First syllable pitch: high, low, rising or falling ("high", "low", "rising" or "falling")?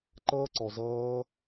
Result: high